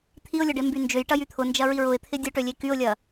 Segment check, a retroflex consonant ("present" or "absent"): present